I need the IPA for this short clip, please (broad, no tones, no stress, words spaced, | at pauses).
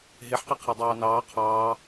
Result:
ɦeħqi qʰadˤɑːnɑː qʰɑː